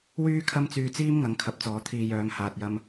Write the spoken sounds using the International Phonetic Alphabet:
wyː˥ kʰɐ˥mt͡syː˧t͡siː˥m ŋɐ˨˥ŋkʰɐ˨˥p̚t͡sɔː˨˧ t̪ʰiː˨ jœː˨˧ŋhaː˨t̚jɐ˧m

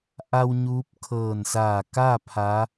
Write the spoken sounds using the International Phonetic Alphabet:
ʔa˧w ɲuː˧˥p̚ kʰɤː˧˩nsaː˧˩kaː˥˨ pʰa˧˥

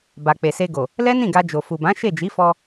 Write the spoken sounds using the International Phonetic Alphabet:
ba˨k͡pe˨se˧ɡo˨ | lɛ˦nĩ˦˨ɡa˧ d͡ʒo˨fu˨bã˨˦ ʃe˦˨d͡ʒi˨˦fɔ˧

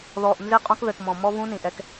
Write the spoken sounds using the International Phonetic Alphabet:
ðɔ˨ʔ nze˦qʼõ˦kðɘ˨kmɔ̃˨ mɔ˦vũ˦nĩ˨ʔɛ˦k

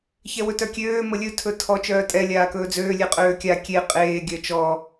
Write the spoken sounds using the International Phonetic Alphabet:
çɛwɵtœkʲøː məlʲɵ tʰɵtʰɔ t͡ʃœːtʼɛ lʲaːkɵːd͡zøː lʲeqʼøːkʲa kʲe qʼeː ɡʲœt͡ʃɔ

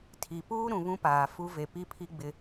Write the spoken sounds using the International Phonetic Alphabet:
tʰi˨puː˦ ɾũ˨βũ˦paː˨ fu˦ ve˨pi˦pʰi˦ɡ͡bɪ˦

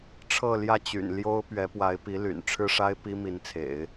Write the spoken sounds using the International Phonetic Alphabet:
ʈ͡ʂʰɤ˥˧ljä˥˩t͡ɕy̰˨˩nljo˥ʊ̯ pɥɛ˧˥pwa˧˥ɪ̯pi˧˥ly̰˨˩n ʈ͡ʂʰɻ̩˥ʂa˥ɪ̯ pi˥mi˧˥nt͡sʰḛ˨˩˦ɪ̯

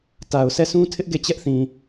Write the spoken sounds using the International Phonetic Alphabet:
ta˨ʊ̯ sɛ˦˨sʰũ˦tʰɪ˦ʔ ɡe˦˨t͡ɕɛ˦ʔθĩ˨

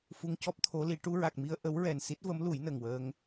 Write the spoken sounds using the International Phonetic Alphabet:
fu˧ŋcɔ˦˥p̚ t̪ʰo˧˥li˨˩˦ ʈu˧ɹa˨˩k̚mi˧ə̯ ʔə˧˥wɹɛ˨˩n si˦˥t̚və˧˥mlu˨˩˦j nə˨˩ŋwəː˧ŋ

